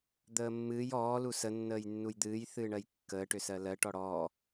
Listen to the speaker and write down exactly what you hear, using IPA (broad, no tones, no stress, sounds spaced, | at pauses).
d̪ əː mː ɨː j ɔː l u s ə nː əː j nː u j d̪ ɨː j θ ɨː ɳ ɜ j kː əː ʈ ʏ s ɜ l ɜ ʈ ɔ ɽ ɔː